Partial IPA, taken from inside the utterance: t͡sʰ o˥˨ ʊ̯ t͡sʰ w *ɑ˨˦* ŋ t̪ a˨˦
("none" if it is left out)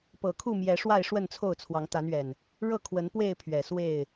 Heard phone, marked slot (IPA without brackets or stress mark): ɑ˨˦